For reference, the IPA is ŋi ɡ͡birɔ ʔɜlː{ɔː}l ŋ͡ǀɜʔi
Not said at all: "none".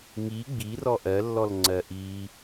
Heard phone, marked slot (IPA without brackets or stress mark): ɔ